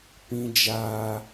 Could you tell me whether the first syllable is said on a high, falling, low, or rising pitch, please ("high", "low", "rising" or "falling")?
high